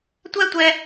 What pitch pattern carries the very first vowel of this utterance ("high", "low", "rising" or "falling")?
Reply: high